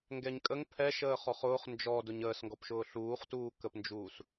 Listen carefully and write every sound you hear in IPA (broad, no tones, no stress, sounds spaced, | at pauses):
ŋ ɡ ɛ ɲ kʼ ə ŋ pʰ ɛ ʃ əː χ ɔ χ ʊː χ n d͡ʒ ɔ d ʊ ɲ əː s ŋ ɡ ɔ p ʃ ʊː ɬ uː χ t uː k ə p n d͡ʒ uː s